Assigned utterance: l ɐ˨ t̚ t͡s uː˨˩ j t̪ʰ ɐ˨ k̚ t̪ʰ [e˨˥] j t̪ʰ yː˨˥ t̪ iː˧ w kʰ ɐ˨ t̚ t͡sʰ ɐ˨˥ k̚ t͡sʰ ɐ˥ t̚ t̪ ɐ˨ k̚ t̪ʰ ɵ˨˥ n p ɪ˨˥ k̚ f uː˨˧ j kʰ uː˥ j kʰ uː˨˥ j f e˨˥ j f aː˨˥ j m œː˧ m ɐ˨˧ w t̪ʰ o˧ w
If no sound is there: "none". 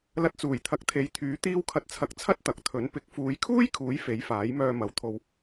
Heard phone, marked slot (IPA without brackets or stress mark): e˨˥